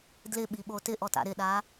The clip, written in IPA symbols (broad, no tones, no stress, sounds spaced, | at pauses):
d l ɪ ɓ i ɓ o t ɪ ʔ ɔ t a̰ ɾ ɪ ɗ a